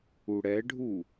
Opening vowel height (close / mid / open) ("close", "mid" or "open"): close